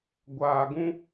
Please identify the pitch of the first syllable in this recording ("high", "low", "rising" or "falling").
low